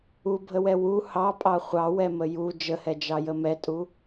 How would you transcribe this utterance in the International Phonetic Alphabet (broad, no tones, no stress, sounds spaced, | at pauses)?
u bʱ ə w ɛ w u h ɑ pʼ ɑ χʷ ɑ w ɛ m ə j u d͡ʒ ə h ɛ d͡ʒ ɑ j ə m ɛ tʼ u